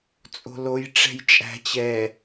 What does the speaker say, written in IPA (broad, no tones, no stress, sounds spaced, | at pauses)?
t͡sʼ o̤ l o j ʈ͡ʂ ɛ̤ j t͡ʃʼ æ̤ t͡ɕ ɛ